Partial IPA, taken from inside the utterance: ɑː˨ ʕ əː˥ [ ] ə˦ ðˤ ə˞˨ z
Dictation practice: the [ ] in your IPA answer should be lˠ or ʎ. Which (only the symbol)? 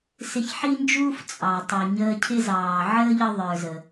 ʎ